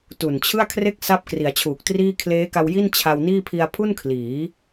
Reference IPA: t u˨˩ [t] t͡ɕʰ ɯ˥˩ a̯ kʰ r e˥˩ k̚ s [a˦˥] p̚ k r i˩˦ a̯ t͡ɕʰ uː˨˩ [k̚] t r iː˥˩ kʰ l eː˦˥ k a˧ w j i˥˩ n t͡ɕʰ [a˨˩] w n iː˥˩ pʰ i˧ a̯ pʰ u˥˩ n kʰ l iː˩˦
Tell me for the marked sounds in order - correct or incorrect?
incorrect: n, correct, correct, incorrect: a˧

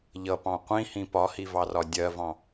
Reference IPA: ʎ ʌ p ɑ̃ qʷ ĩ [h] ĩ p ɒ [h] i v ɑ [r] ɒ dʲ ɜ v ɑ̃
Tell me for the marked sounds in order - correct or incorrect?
correct, correct, correct

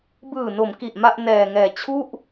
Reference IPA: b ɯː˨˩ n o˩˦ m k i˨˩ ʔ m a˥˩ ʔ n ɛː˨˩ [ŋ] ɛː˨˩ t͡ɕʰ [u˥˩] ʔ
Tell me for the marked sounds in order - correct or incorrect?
correct, correct

